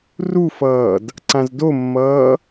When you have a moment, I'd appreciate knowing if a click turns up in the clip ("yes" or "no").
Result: yes